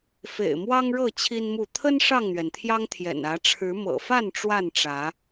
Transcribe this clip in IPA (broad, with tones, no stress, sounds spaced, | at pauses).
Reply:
f ḛ˨˩ ɪ̯ m w ɑ˦ ŋ ɻ ɤ˥˨ t͡ɕʰ i˦ n m u˥˨ t̪ʰ ə˦ n ʂ ɑ˥˨ ŋ n̪ ɥ ɛ˩ n t̪ʰ j ɑ˦ ŋ t̪ʰ j ɛ̰˨˩ n ä˨˦ ʈ͡ʂʰ ɻ̩˨˦ m ɤ̰˨˩ f a˥˨ n ʈ͡ʂ w a˥˨ n ʈ͡ʂ ä˨˦